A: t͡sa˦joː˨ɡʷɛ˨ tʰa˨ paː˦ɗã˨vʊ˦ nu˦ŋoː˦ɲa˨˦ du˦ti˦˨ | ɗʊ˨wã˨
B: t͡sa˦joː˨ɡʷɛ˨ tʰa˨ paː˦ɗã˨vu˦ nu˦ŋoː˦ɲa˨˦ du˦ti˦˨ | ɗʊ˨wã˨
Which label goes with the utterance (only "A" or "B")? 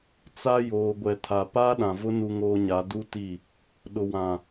A